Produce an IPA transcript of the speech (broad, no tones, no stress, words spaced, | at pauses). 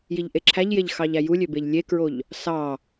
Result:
jiʎʔeǁʰæʎjeʎ xɑʎæjulʲø beʎlʲekɹoʎ | sɑ